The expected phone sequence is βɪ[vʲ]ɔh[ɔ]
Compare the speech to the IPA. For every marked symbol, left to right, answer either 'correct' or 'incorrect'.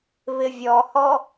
correct, correct

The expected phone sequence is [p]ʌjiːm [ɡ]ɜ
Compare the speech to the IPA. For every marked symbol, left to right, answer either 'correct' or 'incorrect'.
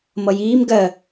incorrect, correct

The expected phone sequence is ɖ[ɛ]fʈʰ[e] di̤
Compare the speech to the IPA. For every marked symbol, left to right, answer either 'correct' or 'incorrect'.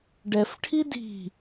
correct, incorrect

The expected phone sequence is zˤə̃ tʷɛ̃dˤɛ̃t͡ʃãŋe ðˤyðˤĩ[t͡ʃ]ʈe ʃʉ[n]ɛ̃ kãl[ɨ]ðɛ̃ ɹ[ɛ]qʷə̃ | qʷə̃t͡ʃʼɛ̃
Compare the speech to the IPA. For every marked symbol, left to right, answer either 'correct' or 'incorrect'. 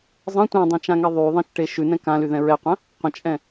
correct, correct, incorrect, correct

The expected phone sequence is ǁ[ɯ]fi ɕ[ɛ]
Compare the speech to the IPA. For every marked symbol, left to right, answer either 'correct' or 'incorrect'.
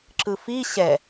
correct, correct

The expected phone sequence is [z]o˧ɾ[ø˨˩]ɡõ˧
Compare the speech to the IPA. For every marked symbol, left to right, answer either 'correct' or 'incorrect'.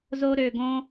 correct, correct

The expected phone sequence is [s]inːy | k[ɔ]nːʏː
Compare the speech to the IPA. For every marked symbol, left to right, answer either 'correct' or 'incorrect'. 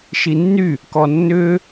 incorrect, correct

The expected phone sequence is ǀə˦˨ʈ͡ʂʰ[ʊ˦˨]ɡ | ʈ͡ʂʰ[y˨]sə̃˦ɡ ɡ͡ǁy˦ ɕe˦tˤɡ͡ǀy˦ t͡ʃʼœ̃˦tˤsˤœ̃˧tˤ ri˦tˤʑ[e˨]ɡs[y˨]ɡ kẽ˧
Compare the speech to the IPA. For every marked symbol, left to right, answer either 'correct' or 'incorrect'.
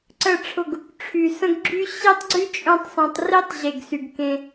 correct, correct, correct, correct

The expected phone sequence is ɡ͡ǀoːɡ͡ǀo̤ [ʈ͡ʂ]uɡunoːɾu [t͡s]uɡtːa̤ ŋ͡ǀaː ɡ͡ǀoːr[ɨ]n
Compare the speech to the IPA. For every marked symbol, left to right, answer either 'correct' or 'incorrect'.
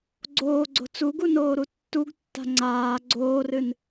incorrect, incorrect, correct

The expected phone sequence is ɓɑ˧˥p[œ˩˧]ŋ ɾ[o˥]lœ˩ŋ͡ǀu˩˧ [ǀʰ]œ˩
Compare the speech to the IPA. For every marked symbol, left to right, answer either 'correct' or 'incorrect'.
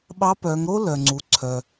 correct, correct, correct

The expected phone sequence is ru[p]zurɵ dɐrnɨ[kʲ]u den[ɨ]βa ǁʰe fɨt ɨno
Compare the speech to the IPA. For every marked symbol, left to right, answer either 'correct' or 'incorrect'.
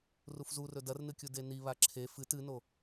incorrect, correct, incorrect

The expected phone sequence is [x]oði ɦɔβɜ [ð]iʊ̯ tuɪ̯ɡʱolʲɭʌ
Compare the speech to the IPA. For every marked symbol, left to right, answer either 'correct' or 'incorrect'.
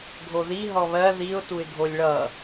incorrect, correct

